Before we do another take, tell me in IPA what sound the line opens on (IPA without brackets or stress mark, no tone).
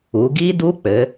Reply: u